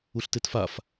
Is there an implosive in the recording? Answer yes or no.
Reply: no